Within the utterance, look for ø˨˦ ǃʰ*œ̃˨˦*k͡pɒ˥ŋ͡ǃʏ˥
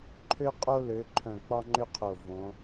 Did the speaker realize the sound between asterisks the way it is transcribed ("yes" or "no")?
no